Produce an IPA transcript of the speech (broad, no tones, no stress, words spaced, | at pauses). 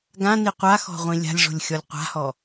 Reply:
ɡãni qʷaxɔ̤ʁʷĩ lʲa̤lʲʐo̤lʲxʲɔlʲ qʷa̤hɔ